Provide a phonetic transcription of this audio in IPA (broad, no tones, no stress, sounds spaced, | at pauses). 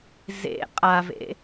z ḛ qʼ a v ḛ